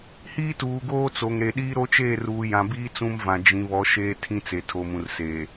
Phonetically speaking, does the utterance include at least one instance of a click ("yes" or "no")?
no